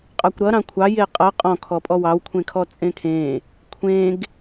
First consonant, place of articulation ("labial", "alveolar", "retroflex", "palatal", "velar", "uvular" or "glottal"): uvular